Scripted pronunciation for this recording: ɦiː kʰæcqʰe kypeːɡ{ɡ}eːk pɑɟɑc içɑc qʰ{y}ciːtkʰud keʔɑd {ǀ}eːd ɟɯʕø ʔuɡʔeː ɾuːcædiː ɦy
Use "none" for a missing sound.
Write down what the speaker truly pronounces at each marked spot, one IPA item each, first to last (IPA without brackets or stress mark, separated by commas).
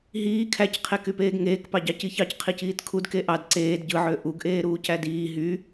ŋ, i, ǀ